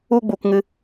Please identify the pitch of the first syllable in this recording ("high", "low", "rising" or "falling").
high